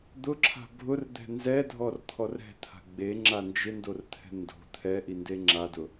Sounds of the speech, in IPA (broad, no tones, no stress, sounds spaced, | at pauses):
d̪ ʊ ǁʰ a̤ bʱ ʊ r d̪ ɛ̤ n z ɛ dʱ ɔ r t̪ʰ ɔ r ɛ̤ t̪ʰ a̤ ɡ͡b e ŋ͡ǁ a n d͡ʒ ɪ n d o r t̪ʰ ɛ̤ n d o̤ t̪ʰ ɛ ʔ i n d e ŋ͡ǁ a d ʊ